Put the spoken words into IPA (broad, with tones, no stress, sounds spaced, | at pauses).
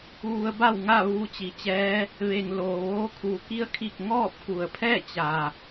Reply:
ʋ u˧ ə̯ b a˥˨ w ŋ a˥˨ ʋ uː˧ t͡ɕ i˩˧ t͡ɕ ɛː˧˥ | ʋ e˩ ŋ l oː˩ ʋ oː˧˥ kʰ uː˩˧ k i˧˥ ə̯ kʰ i˧˩ k̚ ŋ ɔː˥˨ p̚ k u˩ ə̯ pʰ ɛː˥˨ t͡ɕ a˩